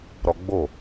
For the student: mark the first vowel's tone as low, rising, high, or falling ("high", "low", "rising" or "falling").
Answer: high